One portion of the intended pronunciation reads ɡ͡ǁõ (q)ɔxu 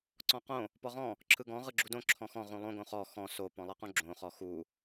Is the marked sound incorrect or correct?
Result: incorrect